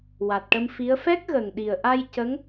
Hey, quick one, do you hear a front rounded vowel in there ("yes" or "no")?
no